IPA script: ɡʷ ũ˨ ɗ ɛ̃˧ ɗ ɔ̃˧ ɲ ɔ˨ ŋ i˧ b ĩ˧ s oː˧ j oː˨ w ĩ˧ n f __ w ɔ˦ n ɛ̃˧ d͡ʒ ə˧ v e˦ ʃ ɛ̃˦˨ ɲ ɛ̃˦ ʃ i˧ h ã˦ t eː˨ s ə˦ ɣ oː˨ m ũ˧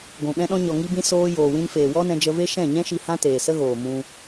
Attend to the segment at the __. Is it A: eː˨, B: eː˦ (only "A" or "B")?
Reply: A